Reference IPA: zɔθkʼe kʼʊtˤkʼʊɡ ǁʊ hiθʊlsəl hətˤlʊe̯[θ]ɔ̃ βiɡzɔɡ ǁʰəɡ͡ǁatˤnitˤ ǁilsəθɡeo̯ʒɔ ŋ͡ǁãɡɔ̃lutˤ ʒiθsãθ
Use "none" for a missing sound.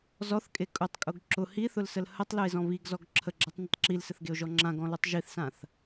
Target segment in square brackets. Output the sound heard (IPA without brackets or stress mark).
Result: z